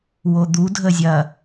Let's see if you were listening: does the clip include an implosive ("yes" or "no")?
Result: no